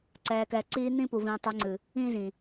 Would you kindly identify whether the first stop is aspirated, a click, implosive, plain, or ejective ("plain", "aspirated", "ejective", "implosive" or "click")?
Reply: click